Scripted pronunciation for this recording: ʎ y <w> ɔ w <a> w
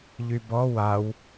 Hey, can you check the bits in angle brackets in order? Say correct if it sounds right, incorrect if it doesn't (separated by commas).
incorrect, correct